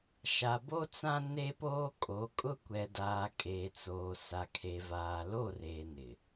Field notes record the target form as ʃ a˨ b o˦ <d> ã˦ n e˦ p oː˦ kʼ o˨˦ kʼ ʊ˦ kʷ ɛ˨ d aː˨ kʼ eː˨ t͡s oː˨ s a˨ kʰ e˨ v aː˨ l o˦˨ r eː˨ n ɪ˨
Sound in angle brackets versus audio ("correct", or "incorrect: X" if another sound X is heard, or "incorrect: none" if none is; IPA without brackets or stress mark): incorrect: t͡s